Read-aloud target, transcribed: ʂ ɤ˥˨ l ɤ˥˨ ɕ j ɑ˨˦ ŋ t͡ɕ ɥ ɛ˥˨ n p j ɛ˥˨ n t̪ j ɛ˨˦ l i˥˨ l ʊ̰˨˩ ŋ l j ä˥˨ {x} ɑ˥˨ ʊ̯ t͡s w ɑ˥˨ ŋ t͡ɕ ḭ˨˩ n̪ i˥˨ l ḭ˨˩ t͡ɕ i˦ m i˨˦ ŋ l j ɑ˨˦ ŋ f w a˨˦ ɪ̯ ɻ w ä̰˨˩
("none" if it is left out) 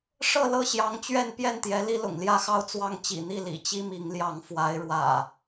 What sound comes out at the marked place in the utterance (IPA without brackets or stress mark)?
x